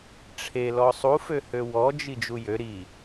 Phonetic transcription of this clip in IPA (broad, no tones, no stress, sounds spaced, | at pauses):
ʈ͡ʂʰ e l ɔ sˤ u f ø h ø w ɔ d͡ʒ i d͡ʒ u j ø ɾ i